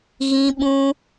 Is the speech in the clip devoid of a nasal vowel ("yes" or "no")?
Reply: no